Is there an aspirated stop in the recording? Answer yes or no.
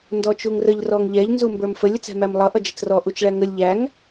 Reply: no